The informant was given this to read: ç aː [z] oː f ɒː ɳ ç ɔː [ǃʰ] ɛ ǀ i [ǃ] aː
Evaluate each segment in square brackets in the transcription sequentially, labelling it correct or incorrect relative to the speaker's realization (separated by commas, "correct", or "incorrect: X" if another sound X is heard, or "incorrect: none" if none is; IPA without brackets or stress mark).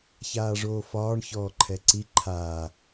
incorrect: ʐ, correct, incorrect: ǃʰ